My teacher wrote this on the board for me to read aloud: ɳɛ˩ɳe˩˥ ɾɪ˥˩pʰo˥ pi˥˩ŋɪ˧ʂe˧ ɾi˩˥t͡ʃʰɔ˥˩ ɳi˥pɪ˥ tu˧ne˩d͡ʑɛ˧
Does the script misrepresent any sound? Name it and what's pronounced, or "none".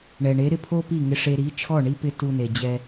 none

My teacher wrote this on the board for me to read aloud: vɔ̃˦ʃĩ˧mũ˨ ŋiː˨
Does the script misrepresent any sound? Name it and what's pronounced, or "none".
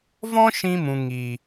none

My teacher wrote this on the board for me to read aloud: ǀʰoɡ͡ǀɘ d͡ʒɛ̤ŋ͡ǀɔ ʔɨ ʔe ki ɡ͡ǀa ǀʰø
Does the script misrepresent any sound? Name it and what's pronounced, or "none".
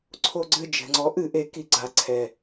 ø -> ɛ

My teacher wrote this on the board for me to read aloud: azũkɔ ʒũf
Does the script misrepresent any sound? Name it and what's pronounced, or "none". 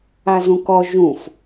none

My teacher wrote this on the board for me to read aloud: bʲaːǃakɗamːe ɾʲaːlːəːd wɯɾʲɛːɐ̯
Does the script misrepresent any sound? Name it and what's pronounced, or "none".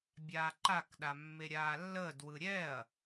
none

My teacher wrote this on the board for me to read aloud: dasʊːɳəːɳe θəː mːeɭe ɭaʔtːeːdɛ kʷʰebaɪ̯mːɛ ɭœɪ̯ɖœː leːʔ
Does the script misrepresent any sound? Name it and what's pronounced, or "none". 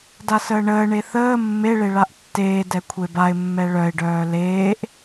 ʊː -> əː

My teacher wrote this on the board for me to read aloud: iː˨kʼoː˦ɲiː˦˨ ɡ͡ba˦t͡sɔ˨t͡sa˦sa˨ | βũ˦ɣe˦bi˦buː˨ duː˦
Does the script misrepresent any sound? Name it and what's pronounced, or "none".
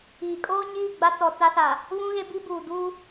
none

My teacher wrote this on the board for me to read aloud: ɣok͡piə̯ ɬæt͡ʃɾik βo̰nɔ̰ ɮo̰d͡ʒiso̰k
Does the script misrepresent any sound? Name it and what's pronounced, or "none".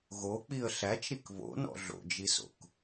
none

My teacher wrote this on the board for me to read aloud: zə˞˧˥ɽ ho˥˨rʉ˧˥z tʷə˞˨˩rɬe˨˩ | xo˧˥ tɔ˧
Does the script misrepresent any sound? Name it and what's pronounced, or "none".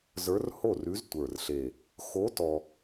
ɽ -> r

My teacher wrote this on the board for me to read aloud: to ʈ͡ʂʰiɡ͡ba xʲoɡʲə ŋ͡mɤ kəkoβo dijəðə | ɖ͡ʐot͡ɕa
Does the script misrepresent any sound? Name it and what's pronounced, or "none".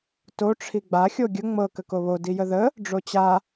none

